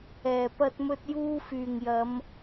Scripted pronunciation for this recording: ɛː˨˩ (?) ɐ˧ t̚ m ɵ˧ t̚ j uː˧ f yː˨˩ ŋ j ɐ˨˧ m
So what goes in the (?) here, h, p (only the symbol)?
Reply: p